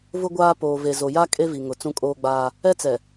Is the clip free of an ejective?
no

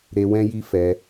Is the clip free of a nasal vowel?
no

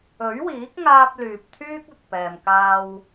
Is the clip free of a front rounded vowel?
no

